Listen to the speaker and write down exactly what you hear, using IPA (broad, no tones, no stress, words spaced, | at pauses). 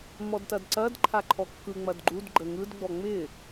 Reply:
mɔdtɐdǀɐd ǃʰaǃʰɔkːɯ ŋ͡mɐdɡ͡ǃud ɡ͡ǃəŋɯd ɡ͡bɔŋ͡mɪ